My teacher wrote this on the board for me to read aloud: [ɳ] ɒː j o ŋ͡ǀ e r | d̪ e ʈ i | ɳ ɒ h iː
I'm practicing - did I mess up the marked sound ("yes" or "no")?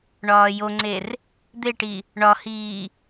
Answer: no